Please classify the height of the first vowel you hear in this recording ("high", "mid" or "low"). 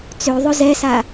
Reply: mid